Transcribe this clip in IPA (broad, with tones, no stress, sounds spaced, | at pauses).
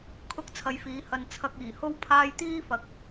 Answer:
kʰ ʊ˥ k̚ t͡sʰ ɐ˧ j f iː˨˥ h ɐ˧ n t͡sʰ ɐ˧ k̚ iː˨˩ h o˥ w pʰ aː˥ j t̪ iː˥ f ɐ˨ k̚